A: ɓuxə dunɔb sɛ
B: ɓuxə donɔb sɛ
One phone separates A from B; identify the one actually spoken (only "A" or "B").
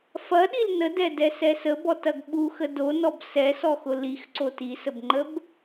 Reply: B